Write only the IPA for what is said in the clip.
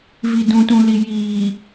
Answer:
vi˨dũ˨tũ˨li˨ jiː˨

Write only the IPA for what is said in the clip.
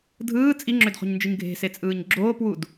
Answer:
dʱɯː t͡sʼiŋ͡ǁødχo̤ɲnd͡ʒɯɲ ɡʱe̤set͡sʼɯːɲ ɡ͡ǁoːpwud

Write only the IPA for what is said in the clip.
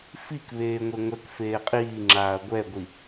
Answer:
fik βeːŋʷeŋʷɛk feːqʼiːŋ͡ǁaːɐ̯ ɡʷɛɡʷi

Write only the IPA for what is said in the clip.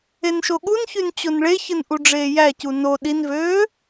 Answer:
enʃoɠunçyn t͡ɕonɭeçɯn ʔuɖ͡ʐeːjæcu no ɗinvøː

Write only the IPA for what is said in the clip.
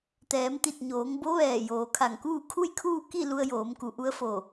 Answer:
t̪ɛː˩˧mt̪i˧˩t̚ɲoː˩˧ŋ bo˧˥ ʋɛː˧˩ joː˩˧kʰa˧˩ŋkuː˥˨ kʰu˥˨jkʰuː˥˨ ki˥˨ lu˧ə̯joː˩˧mku˩˧ ʔu˧˥ə̯fo˧˩

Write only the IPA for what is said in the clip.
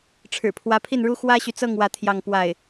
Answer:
ʈ͡ʂʰɻ̩˨˩pʰwä˧˥pʰi˥˩nɻu˥ xwä˥ɕy˨t͡sɤ˥˧ŋ wä˥˧t̪ʰjɑ˥˧ŋ pwa˥˩ɪ̯

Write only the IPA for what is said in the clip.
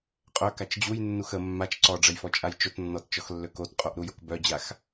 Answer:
qʼœkat͡ʃ d͡ʑujnːux ə mːat͡ʃ ǀɔɖ͡ʐəjfɔt͡ʃʼaj t͡ʃotnːɔtt͡ʃɔxlːø kotqʼoʔɾujok bœd͡ʑax

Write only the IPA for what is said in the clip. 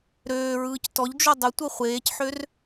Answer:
ɾøːɹɯːc tɔʎd͡ʒo dˤətʷɤ χʷeːcħør

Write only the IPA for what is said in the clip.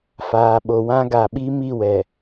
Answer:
faː˨ɓo˨wã˦ɡa˨ ɓi˦mi˦˨wɛ˨

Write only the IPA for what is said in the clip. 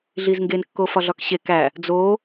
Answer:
ɮizŋɡen kːofɒɮɒkɕe kæ | d͡zo

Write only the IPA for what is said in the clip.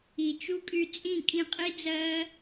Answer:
i˨t͡ʃu˦kʼy˧ t͡sʼĩ˦˨kʼĩ˧qʼi˦d͡zɜ˦

